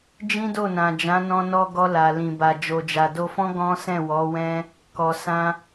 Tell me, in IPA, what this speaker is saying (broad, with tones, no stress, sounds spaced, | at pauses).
d͡ʒ ĩ˦ d o˦˨ n ã˨ d͡ʒ ã˨˦ n ɔ̃˧ n ɔ˧ ɡ ɔ˧ l a˨ l ĩ˨ b a˨ d͡ʒ o˨ d͡ʒ a˨ d o˧ f ɔ̃˦ ɡ ɔ̃˦ s ɛ̃˦˨ w ɔ˨˦ w ɛ̃˦ | k ɔ˨ s ã˧